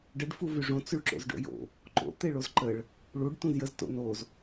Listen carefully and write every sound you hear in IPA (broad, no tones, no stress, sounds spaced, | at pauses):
ɖ ə ɖ f u v y ʐ õ t͡s y ɭ ǁ o̰ z ɖ o̰ j o̰ | ǃ o̰ t̪ e ɭ o z ǃ ə ɭ | ɭ u ɖ t ũ z j ə z t o̰ n o z